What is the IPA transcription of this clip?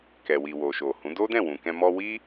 kɛ˨wi˨wo˨ ʃo˨hũ˨˦ do˦dɛ̃˦˨wũ˨kɛ̃˧ mɔ˧wi˦

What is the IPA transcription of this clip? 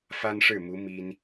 fa˥nʂɻ̩˥˩mu˧˥ mi˥n

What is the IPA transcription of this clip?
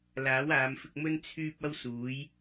laː˨˥waː˨˧mfɪ˧k̚mɵ˥n t͡sʰyː˥p̚ ɐ˥wsuː˨˥j

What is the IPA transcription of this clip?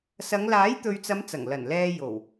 sɐ˨˧ŋ laː˨˥jt̪ɵ˨ɥt͡sɐ˨˧m t͡sɐ˨˩ŋlɐ˨˩nlɛː˧ jo˨˩w

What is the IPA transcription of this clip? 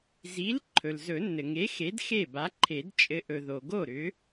zi˨˥l ǃʰɵ˩lzɵ˨˩˦nːɘ˩ŋe˨˥ xe˨˥dxe˥˩ba˨˥ǃʰe˨˩˦d t͡ʃʼɘ˨˥ʔɵ˩ ðo˩ɡo˥˩ ɾʏ˨˥

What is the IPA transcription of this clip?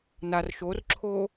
nar ʃorǁʰoː

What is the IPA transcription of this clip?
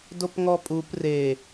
dopŋɔpʼup re

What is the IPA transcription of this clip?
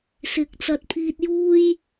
sɪ˨˥k̚ t͡sɐ˨t̚pʰiː˧t̚juː˥j

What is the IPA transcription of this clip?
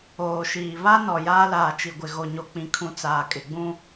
oː˨ʃiː˨ βa˦nɔ˨ jaː˦laː˨t͡ʃi˨ɡʷɪ˨ ɣo˨ɲo˨ k͡pĩ˨kʰũ˨ t͡saː˨kʼɪ˨ ɡ͡bũ˦

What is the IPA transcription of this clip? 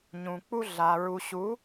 ɲũ˨k͡pu˦ɮa˨ ɹu˨ɕu˨˦

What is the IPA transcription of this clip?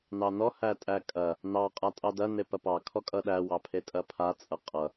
nɑnɔ hætʼækʼɐ | nɑ qʼatʼɑdɐ nepɐpɑ kʰɔkʼʌɗæ wɑpʰetʼɐpʰa t͡sʼʌqʼʌ

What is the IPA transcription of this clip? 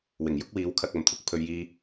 wɪ˨˩ŋjʊ˥k̚wiː˨˥w kʰɐ˨k̚ɐ˨˩mt̪ʰʊ˧k̚ pʰɵ˨ɥjiː˧

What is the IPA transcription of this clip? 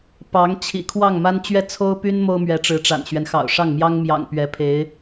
pɑ˧˥ŋ t͡ɕʰḭ˨˩kʰwɑ˥˩ŋma˥n t͡ɕɥɛ˥˩t͡sʰo˥ʊ̯py˥n mo˥ʊ̯mɥɛ˧˥ ʈ͡ʂɻ̩˧˥ʈ͡ʂa̰˨˩nɕɥɛ˦n xɑ̰˨˩ʊ̯ʂɑ˥˩ŋmjɑ˥ŋ mjɑ̰˨˩ŋ pɥɛ˧˥pʰe˧˥ɪ̯

